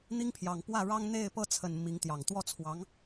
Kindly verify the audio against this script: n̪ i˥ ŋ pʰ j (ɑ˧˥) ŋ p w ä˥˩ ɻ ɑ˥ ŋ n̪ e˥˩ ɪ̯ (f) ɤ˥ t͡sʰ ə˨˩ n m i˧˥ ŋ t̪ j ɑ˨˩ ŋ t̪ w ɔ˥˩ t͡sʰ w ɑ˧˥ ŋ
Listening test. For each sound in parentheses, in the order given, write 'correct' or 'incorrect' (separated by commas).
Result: incorrect, incorrect